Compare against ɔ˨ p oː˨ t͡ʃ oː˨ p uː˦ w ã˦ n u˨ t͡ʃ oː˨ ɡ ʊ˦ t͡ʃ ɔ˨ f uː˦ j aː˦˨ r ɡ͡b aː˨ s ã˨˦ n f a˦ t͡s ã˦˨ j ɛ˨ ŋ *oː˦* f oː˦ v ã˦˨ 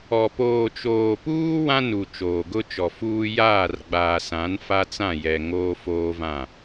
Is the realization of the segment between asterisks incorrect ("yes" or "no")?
no